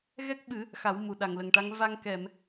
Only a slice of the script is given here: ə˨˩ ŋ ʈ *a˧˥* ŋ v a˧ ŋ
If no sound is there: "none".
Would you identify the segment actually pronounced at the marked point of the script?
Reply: a˧˥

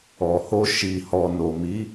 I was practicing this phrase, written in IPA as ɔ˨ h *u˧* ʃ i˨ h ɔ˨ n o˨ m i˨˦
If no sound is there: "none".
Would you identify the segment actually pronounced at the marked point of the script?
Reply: o˧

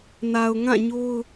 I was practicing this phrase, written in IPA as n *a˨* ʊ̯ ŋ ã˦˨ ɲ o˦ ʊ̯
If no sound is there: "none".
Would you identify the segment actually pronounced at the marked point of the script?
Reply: a˨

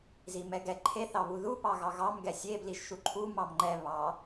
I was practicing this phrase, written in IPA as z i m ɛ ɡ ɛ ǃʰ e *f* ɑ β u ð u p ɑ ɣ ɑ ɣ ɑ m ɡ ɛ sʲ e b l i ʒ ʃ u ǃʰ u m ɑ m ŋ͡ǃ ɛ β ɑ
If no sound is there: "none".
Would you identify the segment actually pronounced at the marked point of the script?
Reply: θ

